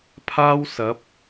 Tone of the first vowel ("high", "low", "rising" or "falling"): high